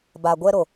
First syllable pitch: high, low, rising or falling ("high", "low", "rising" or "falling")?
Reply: low